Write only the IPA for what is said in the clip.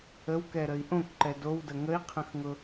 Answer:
əwkɛɾəi̯ ʔõkǃɛ dowdə ŋəi̯qʰə̃xŋʊ

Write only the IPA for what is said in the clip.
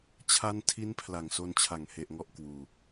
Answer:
t͡ɕʰa˧n tʰi˧n pʰla˨˩ŋso˧nt͡ɕʰa˨˩ŋhe˨˩ʔ ŋɔ˦˥ʔkwuː˧

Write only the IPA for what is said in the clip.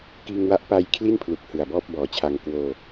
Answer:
kiː˧ŋwa˦˥ʔpa˧jkʰli˥˩n pʰlu˨˩k̚ hɯ˨˩a̯bɔː˥˩p̚ bɔː˩˦t͡ɕʰa˧ŋ kwoː˧

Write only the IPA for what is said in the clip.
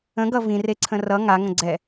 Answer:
ə̃ɡʌ vĩreǀʰə̃ rʌ ŋaŋə̃ ɡ͡ǀɛ

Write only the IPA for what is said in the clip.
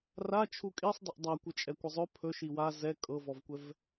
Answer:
rat͡ʃʰu kʼisˤdˤəʔ dˤa kʷɪt͡ʃʼɛkʷɪzˤɵ pʰɵ ʃiwa zɛ kʼɤvɔvkʷɛv

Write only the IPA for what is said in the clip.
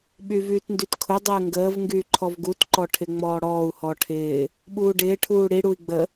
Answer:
ɓyvyːtndytkʰʊ dˤɪːŋɡəːv ŋɡyːǃʰɔvɡut ǃɔʈʰɪŋ͡mɔːɽɔːu̯ hɔʈʰɪː | ɓuːɖɪː ʈʰuːɽi ɽui̯ɡ͡bə

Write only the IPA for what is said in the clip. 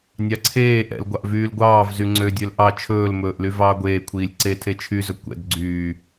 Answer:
nʲɑǀʰeː ʔɛ̰lɡʷɑʔ vyːlɡʷɑːvzy ŋ͡ǀødʲøl ʔɑ t͡ʃʰɵːlmɵːʔly vɑːɡʷeː kʷʰiːlʲǀe tʰet͡ʃʰyzɵ kʷɛ̰d ɡ͡ǀyː

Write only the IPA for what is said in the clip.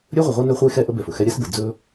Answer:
ɾʲɵ˦ ʁʷə˨ʁʷe˦ nɵ˦χʷe˦xɛ˦ ʔə˦bɛ˨fɵ˨xɛ˦ ɾʲɛ˦sbə˨ d͡zɵ˦

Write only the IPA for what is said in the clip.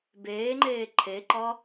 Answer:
beːŋ͡ǃeː ǃʰeǃɒ

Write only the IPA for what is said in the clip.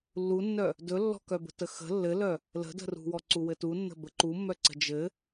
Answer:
lːunːœ | dɵlːɔ̤kœbə̤ təxə̤ lːɘlœ | lə̤də̤rṳwɔ ǀuwɘtu nːə̤bə ǃumːœǀə̤ d͡ʒɘ

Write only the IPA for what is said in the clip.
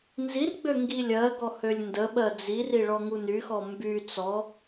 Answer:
nzirɡ͡bø ŋɡilʲɜɡɔ hølʲndəɓɜ d͡ziri ɭɔŋunyxɔ mby t͡sɔ

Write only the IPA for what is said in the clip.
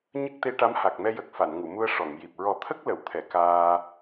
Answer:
ɲə˦˥k̚t̪e˧˥ʈa˧˥m ha˨˩k̚mɛ˧jə˨˩k̚ fa˨˩˨nŋu˨˩˨mu˧ə̯ ʂɔ˨˩˨ŋji˨˩p̚ ɹɔ˨˩˦t̪ʰə˦˥k̚lə˨˩˨wt̪ʰɛ˨˩˨ kaː˧

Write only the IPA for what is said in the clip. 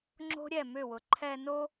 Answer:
ŋ͡ǁo̤˦ɾʲɛ˦˨mʏ˦˨wʊ˨ ǃʰɛ˧no˦

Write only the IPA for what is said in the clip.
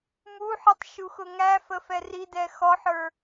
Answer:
muħitˤ ʃuxʊŋæfə fɛridɛ xɔħə˞

